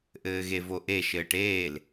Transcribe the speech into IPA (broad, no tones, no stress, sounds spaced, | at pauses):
ʔ ɘː ɣ e v o ʔ e ʃ ɘː ʈ eː l